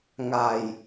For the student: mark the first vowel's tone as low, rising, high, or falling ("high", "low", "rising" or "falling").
low